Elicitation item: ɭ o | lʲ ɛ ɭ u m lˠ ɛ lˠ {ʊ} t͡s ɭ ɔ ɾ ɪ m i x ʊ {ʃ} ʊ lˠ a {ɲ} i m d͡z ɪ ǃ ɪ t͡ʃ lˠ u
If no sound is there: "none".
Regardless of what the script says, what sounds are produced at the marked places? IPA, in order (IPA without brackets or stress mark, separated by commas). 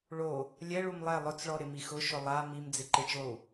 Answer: ʊ, ʃ, m